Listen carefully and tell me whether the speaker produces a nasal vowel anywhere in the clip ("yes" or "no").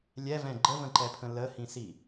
yes